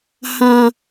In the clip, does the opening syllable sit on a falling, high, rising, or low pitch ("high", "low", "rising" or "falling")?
low